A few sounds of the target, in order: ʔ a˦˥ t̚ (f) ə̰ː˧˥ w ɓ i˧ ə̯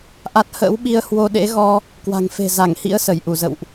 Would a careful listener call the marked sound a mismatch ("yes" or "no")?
yes